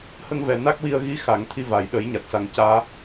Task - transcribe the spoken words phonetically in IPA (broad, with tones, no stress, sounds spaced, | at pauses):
h ə˧ ŋ v ɛ˨˩ n a˦˥ k̚ w i˧ ə̯ ɣ i˧˥ x a˨˩˦ ŋ t̪ʰ i˧ v a˨˩˨ j ɗ ə˨˩˦ j ɲ a˨˩ t̚ s a˨˩ ŋ c aː˧